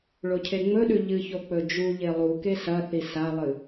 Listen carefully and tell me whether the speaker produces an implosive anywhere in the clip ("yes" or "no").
yes